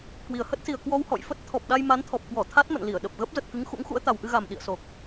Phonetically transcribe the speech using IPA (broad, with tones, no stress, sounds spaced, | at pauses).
k w i˨˩ ə̯ h ə˦˥ t̚ s i˨˩ ə̯ k w ɔ˧ w h ɔ̰˧˨ j f ə˦˥ t̚ t̪ʰ ɔ˨˩ p̚ ɗ a˧ j m a˨˦ n t̪ʰ ɔ˨˩ p̚ k w ɔ˧˩ t̪ʰ a˦˥ t̚ m ə̰˧˨ n l i˧˩ ə̯ ɗ ə˨˩ p̚ ɣ ə˦˥ p̚ z ə˨˩ t̚ k ɨ˨˦ ŋ x ṵ˧˥ ŋ x ṵ˧˥ ə̯ t̪ a˨˩ w ʔ ɨ˧ ɣ a˨˩ m ɗ ḭ˧˨ ə̯ s o˨˩ k̚